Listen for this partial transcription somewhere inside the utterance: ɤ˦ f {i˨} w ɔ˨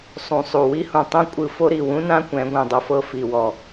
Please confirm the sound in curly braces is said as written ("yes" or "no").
yes